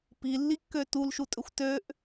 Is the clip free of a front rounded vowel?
no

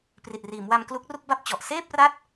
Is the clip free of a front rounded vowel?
yes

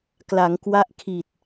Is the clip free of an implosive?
yes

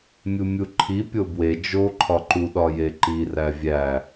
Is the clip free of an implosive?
no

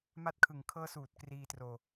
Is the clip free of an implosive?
yes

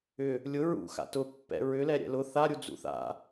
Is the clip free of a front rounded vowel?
no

